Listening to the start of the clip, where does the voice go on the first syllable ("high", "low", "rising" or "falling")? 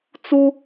high